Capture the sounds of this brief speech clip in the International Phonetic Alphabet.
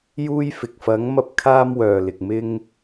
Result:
j uː˧ j f ɪ˨ k̚ f ɐ˨˧ ŋ m ɐ˧ p̚ kʰ aː˧ m w œː˨ l ɪ˨ k̚ m ɪ˧ ŋ

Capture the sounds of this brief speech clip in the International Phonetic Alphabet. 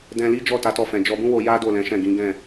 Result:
d ɛ̃˧ l i˦ d͡ʒ ɔ˦˨ t a˨˦ t ɔ˧ f ɛ̃˨ d͡ʒ ɔ˧ b ũ˦ w o˧ j a˦ d o˦˨ l ɛ̃˨˦ ʃ ɛ̃˦˨ ɡ ĩ˨˦ ɡ ɛ̃˦˨

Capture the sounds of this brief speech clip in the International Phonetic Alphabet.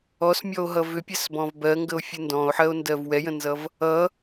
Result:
ɔ s mʲ ɔ o̯ ɦ ʌ v ʏ pʲ ɛ s b ɔ̃ v b ɜ ŋ ɡ ə o̯ fʲ ɨ n d ɔ̃ o̯ ħ ɜ o̯ n d ɜ v w ɛ j ə̃ n z ʌ v | ʌ

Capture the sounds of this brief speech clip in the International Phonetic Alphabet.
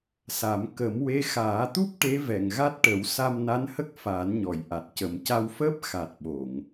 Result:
s a˨˩˦ m k ə˨˩˦ m w e˧˥ x aː˨˩˦ t̪ u˦˥ p̚ ʈ e˧˥ v ɛ˨˩˨ ŋ ɣ a˦˥ t̚ ʈ ə˨˩˦ w s a˧ m n a˧˥ n h ə˦˥ k̚ f aː˨˩˦ n ɲ ɔ˨˩˨ j ʔ a˨˩ t̚ c ə˨˩ m c a˧ w f əː˦˥ p̚ x a˨˩ t̚ ɓ o˨˩˨ ŋ

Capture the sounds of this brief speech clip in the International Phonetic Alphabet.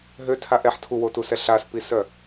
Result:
ɦ ø tʰ a ʔ ɛ ħ tʰ u w o t u s ɛ ɬ a s p i s œ

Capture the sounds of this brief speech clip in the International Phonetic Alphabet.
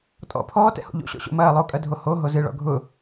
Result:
tʼ ɔ̰ pʰ ɔː t ɛ̰ h o̰ ʎ o̰ ɕ ɔ̰ ɕ o̰ m ɐː lˠ o kʼ ɐ dʱ o h o ɦ o z ɨ ɭ ɔ̰ ɡʱ ʊ

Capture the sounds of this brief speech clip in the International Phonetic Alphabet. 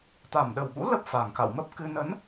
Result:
t̪ a˨˩ m ɗ ə˨˩ w ɓ ṵ˧˥ l ə˦˥ p̚ f a˨˩ ŋ k a̰˧˨ w m ə˦˥ p̚ k ɨ˧ n ə˨˦ n

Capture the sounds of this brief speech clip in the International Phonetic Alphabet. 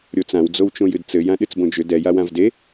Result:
ɾʲ o t͡s ã w d͡z o w t͡ʃ õ j ɨ d t͡s ɘ j ã ɗ ɨ t͡s b õ d͡ʒ ʏ d ɛ j a w ã v d e

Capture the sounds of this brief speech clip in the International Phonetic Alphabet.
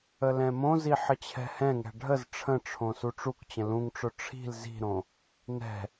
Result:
ə l ɛ̃ m õ z i ħ ə t͡ɕʰ ɛ̤ h ɛ̃ ŋ ɛ̤ ɖʱ ə z ʈ͡ʂʰ ə̃ ʈ͡ʂʰ õ s u ʈ͡ʂ u k t͡ɕ ə̃ l ũ ŋ ʈ͡ʂ ʊ ʈ͡ʂʰ i̤ l z i̤ ɾ õ | n ɛ̤

